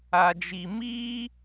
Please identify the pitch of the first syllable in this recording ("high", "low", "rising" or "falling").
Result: low